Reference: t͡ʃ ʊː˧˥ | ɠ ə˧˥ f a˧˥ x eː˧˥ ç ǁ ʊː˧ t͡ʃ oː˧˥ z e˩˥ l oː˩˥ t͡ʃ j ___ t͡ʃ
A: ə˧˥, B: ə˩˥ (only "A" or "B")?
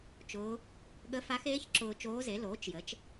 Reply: B